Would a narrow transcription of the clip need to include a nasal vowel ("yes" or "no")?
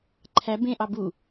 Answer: yes